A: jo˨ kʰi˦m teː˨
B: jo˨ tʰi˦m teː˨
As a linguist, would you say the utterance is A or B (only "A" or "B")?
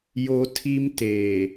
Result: B